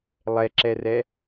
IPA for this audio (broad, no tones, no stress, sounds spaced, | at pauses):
lˠ ɛ ǁ ɛ r ɛ